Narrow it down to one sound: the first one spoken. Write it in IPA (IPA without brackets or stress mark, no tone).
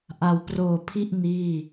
ʔ